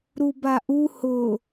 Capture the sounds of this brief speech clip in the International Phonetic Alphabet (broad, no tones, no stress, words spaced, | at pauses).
ɾubaʔu hʊ